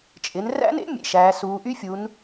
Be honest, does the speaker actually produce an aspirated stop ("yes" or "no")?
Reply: no